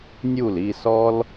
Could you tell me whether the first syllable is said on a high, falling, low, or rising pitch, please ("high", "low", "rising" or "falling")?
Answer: falling